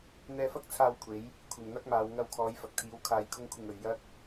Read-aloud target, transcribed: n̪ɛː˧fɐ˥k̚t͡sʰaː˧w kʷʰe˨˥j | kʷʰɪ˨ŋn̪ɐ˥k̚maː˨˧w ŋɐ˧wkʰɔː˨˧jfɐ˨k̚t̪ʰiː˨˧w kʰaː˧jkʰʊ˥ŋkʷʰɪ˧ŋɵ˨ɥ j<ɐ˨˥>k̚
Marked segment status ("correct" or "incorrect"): incorrect